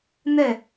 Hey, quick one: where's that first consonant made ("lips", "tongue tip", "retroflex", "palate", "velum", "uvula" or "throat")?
tongue tip